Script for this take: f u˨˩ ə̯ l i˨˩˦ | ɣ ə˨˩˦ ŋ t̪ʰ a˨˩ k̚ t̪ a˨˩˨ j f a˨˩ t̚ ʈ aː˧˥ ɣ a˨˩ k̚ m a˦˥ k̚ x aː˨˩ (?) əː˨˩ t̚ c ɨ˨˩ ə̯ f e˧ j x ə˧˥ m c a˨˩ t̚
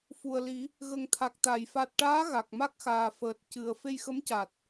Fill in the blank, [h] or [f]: f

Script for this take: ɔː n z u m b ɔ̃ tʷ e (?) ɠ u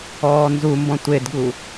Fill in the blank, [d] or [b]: d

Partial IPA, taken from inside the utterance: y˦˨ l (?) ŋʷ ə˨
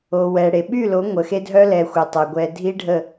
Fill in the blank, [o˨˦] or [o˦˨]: o˨˦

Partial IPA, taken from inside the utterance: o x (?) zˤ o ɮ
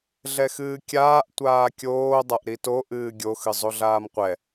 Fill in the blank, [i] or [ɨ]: ɨ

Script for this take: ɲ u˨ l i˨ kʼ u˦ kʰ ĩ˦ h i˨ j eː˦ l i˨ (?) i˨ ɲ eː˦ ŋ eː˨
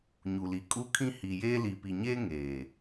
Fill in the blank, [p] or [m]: p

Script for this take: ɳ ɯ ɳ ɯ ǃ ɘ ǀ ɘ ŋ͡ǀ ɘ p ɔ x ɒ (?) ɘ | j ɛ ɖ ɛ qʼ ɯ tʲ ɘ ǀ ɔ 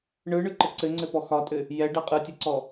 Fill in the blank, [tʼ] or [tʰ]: tʼ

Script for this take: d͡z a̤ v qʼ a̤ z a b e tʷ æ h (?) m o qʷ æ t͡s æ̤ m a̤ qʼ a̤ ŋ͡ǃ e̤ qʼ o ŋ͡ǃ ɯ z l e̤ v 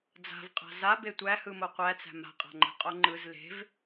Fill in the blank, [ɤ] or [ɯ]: ɯ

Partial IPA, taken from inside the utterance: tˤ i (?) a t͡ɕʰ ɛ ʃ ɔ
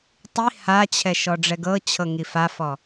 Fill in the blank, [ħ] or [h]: h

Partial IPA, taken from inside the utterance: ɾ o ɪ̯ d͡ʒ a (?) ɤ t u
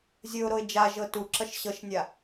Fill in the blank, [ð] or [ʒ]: ʒ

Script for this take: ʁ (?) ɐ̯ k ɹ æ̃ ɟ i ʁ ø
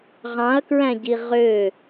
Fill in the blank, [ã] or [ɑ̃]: ɑ̃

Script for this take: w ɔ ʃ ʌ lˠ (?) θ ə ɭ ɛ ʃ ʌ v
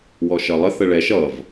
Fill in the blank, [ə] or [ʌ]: ə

